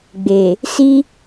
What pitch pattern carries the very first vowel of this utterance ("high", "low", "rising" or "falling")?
low